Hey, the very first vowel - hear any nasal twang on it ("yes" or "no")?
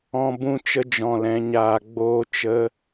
yes